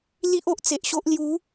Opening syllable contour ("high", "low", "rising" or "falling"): high